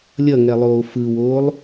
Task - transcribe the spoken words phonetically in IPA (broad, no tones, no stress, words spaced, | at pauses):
lʲʌŋɛlˠoː fɯwoːlˠ